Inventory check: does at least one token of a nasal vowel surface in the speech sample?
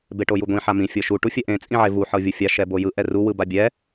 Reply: yes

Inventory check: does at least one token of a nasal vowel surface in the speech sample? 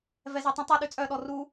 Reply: yes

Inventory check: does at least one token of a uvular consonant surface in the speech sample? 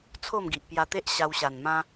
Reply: no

